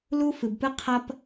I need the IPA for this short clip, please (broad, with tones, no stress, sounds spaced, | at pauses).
l u˦ f ɨ˨ b p ɨ˦ qʰ ɐ˦ p